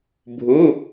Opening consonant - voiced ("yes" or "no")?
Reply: yes